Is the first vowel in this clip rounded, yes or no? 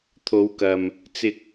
yes